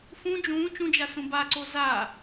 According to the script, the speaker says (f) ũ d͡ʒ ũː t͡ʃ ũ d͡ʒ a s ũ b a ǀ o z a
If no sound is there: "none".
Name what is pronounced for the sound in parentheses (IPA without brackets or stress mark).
f